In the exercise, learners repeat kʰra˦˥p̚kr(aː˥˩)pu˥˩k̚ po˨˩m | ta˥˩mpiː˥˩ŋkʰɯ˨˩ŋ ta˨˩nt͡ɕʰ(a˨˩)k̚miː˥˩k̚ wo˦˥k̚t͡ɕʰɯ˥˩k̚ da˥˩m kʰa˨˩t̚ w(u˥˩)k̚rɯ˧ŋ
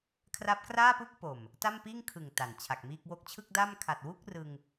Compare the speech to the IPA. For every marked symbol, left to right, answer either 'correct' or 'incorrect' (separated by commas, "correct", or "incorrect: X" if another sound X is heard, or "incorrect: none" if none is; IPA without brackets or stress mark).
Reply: correct, correct, correct